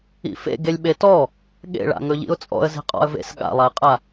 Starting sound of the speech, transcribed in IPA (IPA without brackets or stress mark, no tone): ḭ